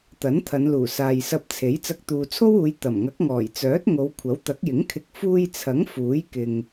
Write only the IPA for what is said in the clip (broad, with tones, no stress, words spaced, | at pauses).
t̪ɐ˨˥nt̪ʰɐ˨˧nluː˨˩ saː˨jsɐ˧p̚t͡sʰe˨˥j t͡sɐ˧k̚t̪uː˨t͡sʰo˥wuː˨˧j t̪ɐ˨˩mŋɐ˨˥k̚ŋɔː˨˩jt͡sœː˨˥t̚ ŋo˨˧wkʷʰɐ˨˥wt̪ɐ˨˥k̚jɪ˨˥ŋ kʰɪ˧k̚ fuː˧jt͡sʰɐ˨˥ŋ fuː˨˥jkɪ˨ŋ